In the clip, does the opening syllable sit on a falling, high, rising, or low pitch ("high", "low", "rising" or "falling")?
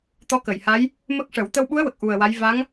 rising